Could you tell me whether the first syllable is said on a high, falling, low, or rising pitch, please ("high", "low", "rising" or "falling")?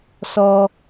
high